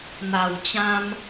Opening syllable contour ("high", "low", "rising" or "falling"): low